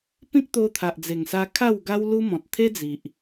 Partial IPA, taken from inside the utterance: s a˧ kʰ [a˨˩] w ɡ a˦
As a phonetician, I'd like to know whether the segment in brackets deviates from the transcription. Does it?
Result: yes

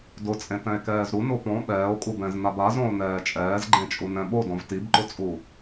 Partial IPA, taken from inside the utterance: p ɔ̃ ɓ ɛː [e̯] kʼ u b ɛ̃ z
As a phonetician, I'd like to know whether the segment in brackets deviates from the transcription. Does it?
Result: yes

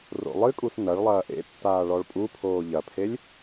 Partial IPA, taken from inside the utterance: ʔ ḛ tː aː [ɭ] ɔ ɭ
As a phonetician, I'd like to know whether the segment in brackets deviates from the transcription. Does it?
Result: no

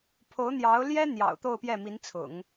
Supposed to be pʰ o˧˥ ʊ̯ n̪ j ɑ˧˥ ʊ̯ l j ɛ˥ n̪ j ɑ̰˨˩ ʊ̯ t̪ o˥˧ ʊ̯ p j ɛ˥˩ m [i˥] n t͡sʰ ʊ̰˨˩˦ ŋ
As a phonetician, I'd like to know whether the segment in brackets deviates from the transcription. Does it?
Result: yes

